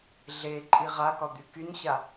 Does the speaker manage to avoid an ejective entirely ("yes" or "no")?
no